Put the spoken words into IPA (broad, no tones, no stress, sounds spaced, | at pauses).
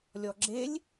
lʲ ɔ ɡ͡ǁ e lʲ